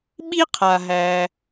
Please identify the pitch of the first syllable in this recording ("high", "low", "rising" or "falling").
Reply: high